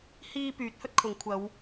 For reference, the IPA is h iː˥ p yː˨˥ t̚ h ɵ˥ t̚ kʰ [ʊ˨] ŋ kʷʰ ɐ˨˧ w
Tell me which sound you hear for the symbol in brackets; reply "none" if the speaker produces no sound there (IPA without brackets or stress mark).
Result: ʊ˨˧